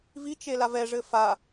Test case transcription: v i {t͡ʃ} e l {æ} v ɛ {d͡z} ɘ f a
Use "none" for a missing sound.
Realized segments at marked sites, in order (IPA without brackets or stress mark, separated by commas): t͡ʃ, a, ʐ